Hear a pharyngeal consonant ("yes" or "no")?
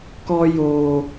no